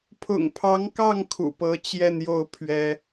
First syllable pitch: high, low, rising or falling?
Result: low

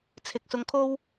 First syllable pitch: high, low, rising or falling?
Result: low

